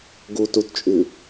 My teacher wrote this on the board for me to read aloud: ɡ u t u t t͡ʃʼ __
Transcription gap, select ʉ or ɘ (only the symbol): ʉ